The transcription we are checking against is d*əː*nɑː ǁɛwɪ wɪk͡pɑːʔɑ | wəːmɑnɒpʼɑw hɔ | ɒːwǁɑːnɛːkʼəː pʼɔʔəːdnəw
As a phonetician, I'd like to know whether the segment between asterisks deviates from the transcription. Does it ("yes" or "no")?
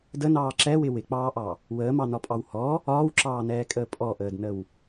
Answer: yes